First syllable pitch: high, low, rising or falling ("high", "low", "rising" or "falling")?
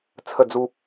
falling